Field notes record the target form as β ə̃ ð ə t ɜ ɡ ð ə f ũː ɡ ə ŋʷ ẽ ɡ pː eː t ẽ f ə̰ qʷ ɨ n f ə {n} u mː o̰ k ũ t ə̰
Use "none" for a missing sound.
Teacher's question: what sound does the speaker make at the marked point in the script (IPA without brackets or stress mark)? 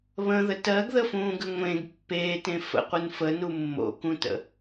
n